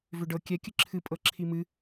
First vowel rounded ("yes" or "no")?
yes